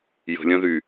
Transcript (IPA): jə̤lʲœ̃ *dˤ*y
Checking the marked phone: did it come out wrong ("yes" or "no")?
yes